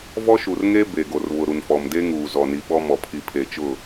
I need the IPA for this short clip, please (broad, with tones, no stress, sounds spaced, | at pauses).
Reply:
v ɔ˦ ʃ u˨ r ŋ e˦ b e˨ ɡ o˨ r β ʊ˨ ɾ u˨ n f ɔ˨ m d e˦ ŋ uː˨ z ɔ˨ n i˨ ɓ ɔ˦ m ɔ˨ pʰ i˨ pʰ e˨ t͡ʃ ʊ˦˨